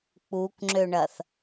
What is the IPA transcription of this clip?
k͡p u k ŋ͡ǁ ø ɳ ɐ θ

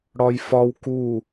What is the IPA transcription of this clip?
ɽ ɒ j f ɒ w k u

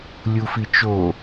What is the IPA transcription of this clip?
lʲ u f i t͡ʃ o

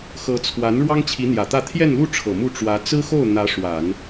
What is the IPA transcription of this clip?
x ɤ˧˥ t͡sʰ w a˧˥ n ɻ w ɑ˥ ŋ t͡ɕʰ i˧˥ n̪ j ä˨˩ t̪ ä˥˧ t̪ʰ j ɛ˥˧ n l u˥˩ ʈ͡ʂʰ ɤ˨˩ m u˥˩ ʈ͡ʂ w ä˧˥ t͡s ɹ̩˥ x o˥˩ ʊ̯ n̪ ä˧˥ ʂ w a˨˩˦ n

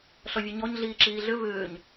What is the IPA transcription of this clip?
ɬ ɔ vʲ ʉ ɲ ɔ ɲ ɮ iː ǁ iː ɮ ʏ v ʏː ɲ

